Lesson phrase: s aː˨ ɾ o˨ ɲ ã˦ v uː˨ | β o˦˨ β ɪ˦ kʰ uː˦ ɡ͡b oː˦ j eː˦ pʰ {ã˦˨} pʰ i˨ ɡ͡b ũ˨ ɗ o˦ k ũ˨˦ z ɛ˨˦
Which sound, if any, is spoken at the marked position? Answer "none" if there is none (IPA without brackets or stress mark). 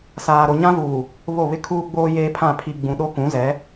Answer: ã˦˨